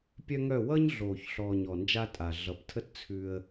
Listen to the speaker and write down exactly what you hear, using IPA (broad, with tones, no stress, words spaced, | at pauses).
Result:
pʲœ˦ŋœ˦˨ wʌː˦ɲɮoː˨çɬɔː˨ɲ ɔ˨nd͡ʒa˦tʼa˨ ɮʌ˨ptʰə˦t t͡sʰʉ˦ə̯